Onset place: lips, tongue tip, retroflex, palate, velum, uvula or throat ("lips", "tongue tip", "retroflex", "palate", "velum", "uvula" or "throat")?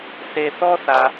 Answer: tongue tip